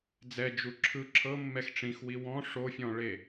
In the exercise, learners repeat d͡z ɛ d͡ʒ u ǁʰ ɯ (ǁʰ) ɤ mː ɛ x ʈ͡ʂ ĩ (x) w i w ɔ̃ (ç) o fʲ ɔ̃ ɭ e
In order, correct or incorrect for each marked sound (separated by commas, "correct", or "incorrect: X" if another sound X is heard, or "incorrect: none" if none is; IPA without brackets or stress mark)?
correct, correct, incorrect: ʂ